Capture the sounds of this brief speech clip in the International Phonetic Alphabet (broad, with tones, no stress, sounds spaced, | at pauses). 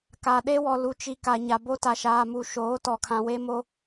k a˨ ɗ e˦ w ɔ˨ l u˨ t͡ʃ i˨ k a˨ ɲ a˨ b o˦ t a˨ ʃ aː˨ m u˨ ʃ oː˨˦ t ɔ˨ kʰ ã˨ w e˦ m o˦